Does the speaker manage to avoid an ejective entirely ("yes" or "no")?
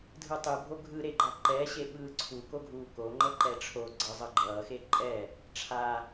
no